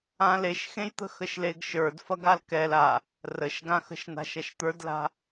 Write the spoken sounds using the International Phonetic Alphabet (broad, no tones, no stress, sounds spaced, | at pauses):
ã l e ʃ x ẽ j t̪ ə̤ x ə ʃ l e ɡ ʃ ə˞ d f ɐ ɡ a l k ɛ l a | r ə ʃ ɡ ã x ə̤ ʃ n a̤ ʃ ɐ ʃ t̪ ə˞ d l a̤